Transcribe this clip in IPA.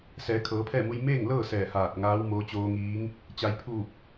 s ɛː˩˧ kʰ ɤː˩˧ pʰ ɛː˥˨ m u˧ j m eː˥˨ ŋ l ɤː˥˨ s ɛː˧˩ h aː˧˩ t̚ ŋ aː˧˥ w m oː˧˥ t͡ɕ oː˧ ŋ iː˧˥ ŋ | t͡ɕ a˩˧ j pʰ uː˧˩ p̚

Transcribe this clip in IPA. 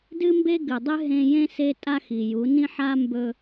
d ɨ˦ m b e˦ ɡ ɨ˨ dˤ ɨ˦ ɦ ẽ˦ j ẽ˦ s e˦ tʼ a˦ x i˨ j u˨˦ n ĩ˦ ħ a˦ m b ɵ˦

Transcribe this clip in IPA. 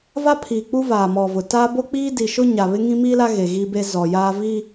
v a˦ pʰ iː˨ k͡p u˦ v aː˨ m ɔ˨ v ʊ˨ t a˦ b o˦ k͡p iː˦ d i˨ ʃ ʊ˦ ɲ a˨ β ɪ˦ ŋ ĩ˦ m i˦ l a˦ ɣ e˨ ɣ i˦ b e˦ z ɔ˨ j aː˦ v i˦

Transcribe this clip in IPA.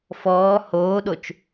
f ɔː h oː ɗ o t͡ʃ

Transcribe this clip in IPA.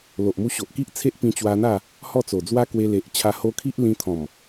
l o˨ ʔ m u˧ ɕ o˨ ʔ k i˦ ʔ t͡sʰ e˦ ʔ p ĩ˧ t͡ɕ w a˧ n̪ a˥˧ | h ɔ˥˧ t͡s o˨˩ d͡z w a˦ k w e˧ l e˨ ʔ t͡ɕʰ a˧ h o˧ kʰ i˦ ʔ l ĩ˧ t̪ʰ ɔ̃˨˩ m

